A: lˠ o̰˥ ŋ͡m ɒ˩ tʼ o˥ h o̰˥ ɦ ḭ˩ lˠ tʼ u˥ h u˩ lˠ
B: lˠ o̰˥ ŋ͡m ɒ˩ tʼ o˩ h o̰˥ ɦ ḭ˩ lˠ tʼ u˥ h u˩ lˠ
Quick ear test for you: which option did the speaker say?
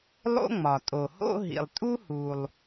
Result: B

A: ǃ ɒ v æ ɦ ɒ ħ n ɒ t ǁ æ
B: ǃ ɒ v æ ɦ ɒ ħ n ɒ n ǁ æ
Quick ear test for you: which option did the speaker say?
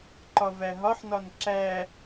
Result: B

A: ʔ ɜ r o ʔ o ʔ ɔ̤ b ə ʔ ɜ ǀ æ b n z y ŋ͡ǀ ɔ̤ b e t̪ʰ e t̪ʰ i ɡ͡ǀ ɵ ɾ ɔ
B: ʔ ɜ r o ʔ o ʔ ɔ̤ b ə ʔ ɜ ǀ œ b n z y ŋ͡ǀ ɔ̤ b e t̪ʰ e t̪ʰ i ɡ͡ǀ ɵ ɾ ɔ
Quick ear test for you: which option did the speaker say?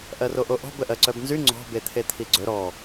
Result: B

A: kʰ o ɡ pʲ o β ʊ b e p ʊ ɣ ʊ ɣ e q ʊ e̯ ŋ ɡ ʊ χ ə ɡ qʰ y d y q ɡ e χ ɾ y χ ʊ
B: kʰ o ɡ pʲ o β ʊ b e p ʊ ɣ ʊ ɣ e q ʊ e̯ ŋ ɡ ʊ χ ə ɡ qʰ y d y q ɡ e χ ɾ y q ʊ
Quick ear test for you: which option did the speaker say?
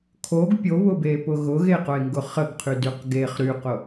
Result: B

